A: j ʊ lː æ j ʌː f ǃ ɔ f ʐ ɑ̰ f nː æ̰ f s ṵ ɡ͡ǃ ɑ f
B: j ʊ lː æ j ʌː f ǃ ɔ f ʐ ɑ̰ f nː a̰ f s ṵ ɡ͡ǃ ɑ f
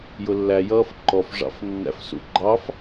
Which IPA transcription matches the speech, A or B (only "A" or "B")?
A